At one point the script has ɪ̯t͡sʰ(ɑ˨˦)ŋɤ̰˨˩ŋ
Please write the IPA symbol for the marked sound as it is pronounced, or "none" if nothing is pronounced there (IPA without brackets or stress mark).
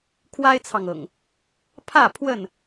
ɑ˨